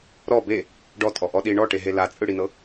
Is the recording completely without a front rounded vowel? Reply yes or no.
yes